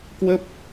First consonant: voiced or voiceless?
voiceless